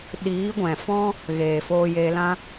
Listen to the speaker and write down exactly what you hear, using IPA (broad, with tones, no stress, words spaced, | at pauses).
ɗiː˨˦ɡʷɛ̃˨fɔ̃˦ | ɣeː˨foː˧jeː˧lã˦